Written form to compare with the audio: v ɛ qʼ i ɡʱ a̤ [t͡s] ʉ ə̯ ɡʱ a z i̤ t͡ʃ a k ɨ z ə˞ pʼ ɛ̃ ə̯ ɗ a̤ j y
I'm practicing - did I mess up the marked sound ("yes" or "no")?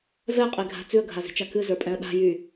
no